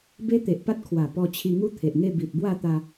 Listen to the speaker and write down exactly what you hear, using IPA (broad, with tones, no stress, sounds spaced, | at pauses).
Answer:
b e˦ t̪ e˨ ʔ p a˦ t̚ kʰ w a˨˩ p ɔ˧ t͡ɕʰ i˧ ŋ u˦ t̪ʰ e˨ ʔ ŋ e˥˧ b i˨ t̚ b w a˥˧ t̪ a˧